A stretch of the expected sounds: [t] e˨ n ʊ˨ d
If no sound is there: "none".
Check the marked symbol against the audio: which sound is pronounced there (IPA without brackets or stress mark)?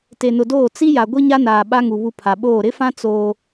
t